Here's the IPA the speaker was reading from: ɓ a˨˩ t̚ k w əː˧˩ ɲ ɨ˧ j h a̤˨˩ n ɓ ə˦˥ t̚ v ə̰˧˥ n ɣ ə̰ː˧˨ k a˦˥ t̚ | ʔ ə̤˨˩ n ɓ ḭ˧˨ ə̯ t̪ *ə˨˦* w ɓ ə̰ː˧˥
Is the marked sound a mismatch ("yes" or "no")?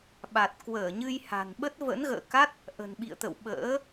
yes